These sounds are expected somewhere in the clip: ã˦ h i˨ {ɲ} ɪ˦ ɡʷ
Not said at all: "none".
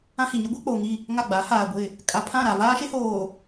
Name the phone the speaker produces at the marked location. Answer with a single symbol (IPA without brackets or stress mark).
ɲ